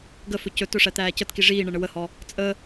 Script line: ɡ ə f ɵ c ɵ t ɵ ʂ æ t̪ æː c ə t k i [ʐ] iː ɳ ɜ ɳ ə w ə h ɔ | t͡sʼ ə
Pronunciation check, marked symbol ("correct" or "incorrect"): correct